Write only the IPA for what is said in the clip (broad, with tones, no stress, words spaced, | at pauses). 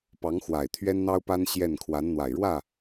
pɑ˧˥ŋxwa˨˩ɪ̯ t̪ʰɥɛ˥nn̪ɑ˥ʊ̯pa˥n ɕjɛ˥˩n kʰwa˧˥nn̪wa˨˩ɪ̯ɻwä˥˩